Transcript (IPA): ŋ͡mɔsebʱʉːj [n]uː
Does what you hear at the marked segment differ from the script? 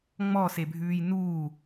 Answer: no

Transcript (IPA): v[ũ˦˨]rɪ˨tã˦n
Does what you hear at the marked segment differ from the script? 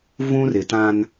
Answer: yes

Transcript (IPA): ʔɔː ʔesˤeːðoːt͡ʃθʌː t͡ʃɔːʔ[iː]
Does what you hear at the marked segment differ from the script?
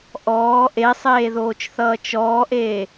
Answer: yes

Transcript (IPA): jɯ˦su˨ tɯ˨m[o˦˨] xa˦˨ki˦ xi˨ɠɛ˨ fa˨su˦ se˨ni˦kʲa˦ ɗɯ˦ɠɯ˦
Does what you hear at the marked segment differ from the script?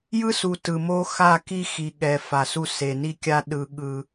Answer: yes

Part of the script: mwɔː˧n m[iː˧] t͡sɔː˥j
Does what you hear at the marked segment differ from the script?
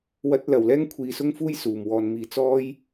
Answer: yes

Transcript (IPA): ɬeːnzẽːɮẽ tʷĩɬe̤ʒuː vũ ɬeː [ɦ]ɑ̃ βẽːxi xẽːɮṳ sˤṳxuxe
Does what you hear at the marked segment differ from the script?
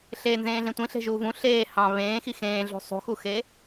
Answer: yes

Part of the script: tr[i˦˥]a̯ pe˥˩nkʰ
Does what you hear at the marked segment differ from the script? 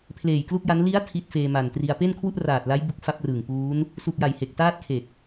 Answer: yes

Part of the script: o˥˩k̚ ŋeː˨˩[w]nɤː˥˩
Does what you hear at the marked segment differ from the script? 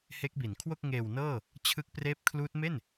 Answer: no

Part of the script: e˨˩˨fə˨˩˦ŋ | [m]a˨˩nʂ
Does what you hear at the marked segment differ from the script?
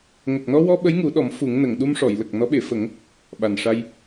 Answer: yes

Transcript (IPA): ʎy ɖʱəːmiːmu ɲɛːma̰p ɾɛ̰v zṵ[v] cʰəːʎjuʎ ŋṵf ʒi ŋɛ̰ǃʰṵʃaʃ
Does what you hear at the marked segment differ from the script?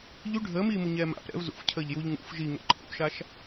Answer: yes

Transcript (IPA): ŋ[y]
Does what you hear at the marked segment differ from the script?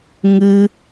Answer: yes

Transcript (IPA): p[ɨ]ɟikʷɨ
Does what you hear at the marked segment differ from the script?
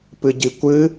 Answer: no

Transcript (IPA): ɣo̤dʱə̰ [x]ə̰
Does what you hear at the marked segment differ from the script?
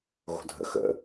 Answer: no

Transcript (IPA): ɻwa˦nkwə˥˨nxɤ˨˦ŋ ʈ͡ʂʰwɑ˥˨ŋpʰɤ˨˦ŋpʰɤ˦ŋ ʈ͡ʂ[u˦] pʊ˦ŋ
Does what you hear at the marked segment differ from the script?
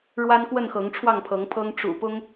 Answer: yes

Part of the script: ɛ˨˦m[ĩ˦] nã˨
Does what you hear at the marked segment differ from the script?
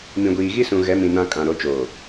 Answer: yes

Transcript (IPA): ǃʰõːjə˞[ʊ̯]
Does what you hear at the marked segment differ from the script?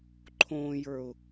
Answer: no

